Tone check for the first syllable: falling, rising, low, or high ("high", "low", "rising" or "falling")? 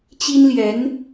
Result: high